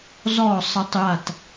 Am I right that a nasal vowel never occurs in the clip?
yes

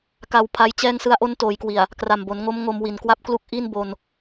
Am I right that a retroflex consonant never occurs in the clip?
yes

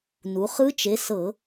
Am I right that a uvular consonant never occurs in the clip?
no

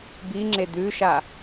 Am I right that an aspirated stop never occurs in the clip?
yes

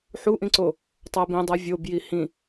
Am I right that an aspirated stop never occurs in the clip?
yes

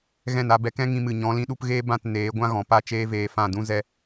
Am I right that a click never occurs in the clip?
yes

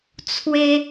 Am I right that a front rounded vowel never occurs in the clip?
yes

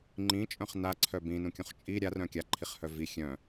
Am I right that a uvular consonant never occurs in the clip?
no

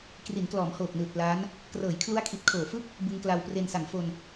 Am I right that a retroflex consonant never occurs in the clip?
yes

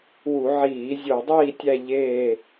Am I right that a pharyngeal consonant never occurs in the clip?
no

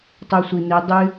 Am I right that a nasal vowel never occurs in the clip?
yes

